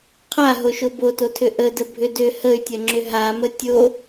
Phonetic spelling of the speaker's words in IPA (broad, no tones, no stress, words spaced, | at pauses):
qʰaɦoʃo bototʰʏ ʔədə bʱʏdʏ həy̯tʲɐŋ͡ǁʏ ɦamə tʲo